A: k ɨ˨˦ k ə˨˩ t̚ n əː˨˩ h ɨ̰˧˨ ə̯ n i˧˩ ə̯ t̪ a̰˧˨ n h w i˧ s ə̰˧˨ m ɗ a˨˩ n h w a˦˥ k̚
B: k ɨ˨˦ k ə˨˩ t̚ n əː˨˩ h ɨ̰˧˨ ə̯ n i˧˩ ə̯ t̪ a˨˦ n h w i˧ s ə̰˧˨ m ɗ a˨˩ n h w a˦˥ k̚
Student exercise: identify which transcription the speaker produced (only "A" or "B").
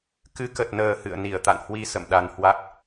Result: A